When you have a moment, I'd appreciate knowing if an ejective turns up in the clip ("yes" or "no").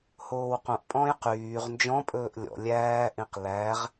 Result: yes